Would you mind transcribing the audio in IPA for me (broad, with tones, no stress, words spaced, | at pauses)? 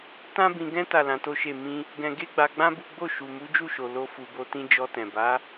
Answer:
tã˦bĩ˧ɡɛ̃˦ ta˦˨lã˨˦to˦ʃe˦˨ mĩ˧ | ɡɛ̃˧ɡe˦ɡ͡ba˧ɡ͡bã˦ bu˦ ɡ͡bo˦˨ ʃu˨mu˨˦d͡ʒu˦˨ʃo˨ lo˧ fu˨bo˧tĩ˧ d͡ʒɔ˧tɛ̃˨ba˨˦